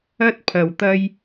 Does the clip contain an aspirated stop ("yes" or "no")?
yes